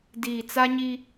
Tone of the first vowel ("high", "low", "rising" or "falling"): low